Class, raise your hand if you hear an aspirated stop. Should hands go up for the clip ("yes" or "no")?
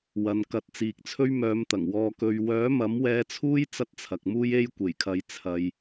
yes